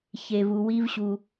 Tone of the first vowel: low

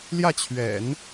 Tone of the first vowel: falling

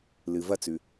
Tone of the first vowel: low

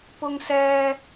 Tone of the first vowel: high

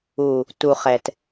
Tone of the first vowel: low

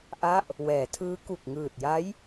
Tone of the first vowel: falling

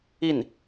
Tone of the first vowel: falling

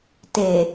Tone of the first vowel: low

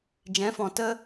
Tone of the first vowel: rising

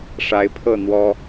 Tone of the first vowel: rising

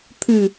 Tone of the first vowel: low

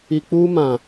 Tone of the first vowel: low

